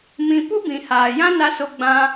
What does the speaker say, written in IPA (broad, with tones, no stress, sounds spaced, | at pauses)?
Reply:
m ĩ˧ p u˦ b ĩ˨ h aː˨ j ã˦ n a˧ s o˧ ɡ͡b ã˧